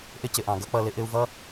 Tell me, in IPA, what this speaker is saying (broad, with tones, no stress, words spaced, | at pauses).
ʔɪ˧cɪ˨ ʔɑ̃˨ɡʌ˦k͡pʌ˧ lɪ˦ʔɪ˦u̯ vʌ˦